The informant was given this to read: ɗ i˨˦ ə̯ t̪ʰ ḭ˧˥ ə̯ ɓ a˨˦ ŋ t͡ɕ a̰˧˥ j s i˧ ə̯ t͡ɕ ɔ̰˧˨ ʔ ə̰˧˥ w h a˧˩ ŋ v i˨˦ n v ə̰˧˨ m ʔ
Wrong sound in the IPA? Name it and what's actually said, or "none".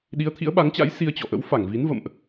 h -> f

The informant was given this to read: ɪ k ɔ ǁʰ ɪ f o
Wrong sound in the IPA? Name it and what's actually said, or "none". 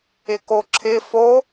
ɔ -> o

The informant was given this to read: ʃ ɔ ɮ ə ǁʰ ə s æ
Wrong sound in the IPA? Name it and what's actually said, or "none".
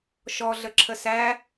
none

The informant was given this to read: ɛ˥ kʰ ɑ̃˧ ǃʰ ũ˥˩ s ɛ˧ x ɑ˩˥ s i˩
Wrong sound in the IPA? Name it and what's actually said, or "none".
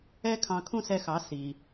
ǃʰ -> kʰ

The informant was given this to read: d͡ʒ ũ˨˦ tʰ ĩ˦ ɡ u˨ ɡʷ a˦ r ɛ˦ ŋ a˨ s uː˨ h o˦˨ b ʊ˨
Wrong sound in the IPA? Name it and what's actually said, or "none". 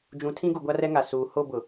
none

